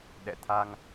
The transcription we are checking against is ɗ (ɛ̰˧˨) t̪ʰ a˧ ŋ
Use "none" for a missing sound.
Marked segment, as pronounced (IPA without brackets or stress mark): ɛ̰˧˨